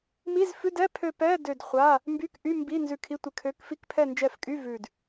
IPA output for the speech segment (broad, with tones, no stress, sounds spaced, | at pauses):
m i˧˥˧ z f ʉ˧˥˧ d ɛ˧˥˧ pʰ ø˦˨ p ɛ˧˥˧ d ø˦˨ d χʷ a˧˥˧ | m b y˧˥˧ k ʔ y˧˥˧ m b i˧˥˧ n z ʉ˦˨ kʰ i˧˥˧ tʷ ɪ˦˨ kʰ ø˧˥˧ k f i˧˥˧ k pʰ ɛ˦˨ n d͡ʒ ɛ˦˨ f kʼ y˧˥˧ v ʉ˦˨ d